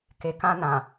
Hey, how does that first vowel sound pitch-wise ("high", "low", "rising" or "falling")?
low